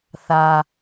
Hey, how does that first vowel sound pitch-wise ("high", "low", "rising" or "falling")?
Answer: low